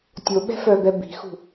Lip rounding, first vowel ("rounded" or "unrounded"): rounded